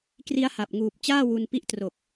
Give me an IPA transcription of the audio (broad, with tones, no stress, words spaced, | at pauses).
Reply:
kri˦˥a̯ha˨˩p̚ŋuː˨˩p̚ t͡ɕaː˥˩wu˧npi˦˥ʔtro˨˩k̚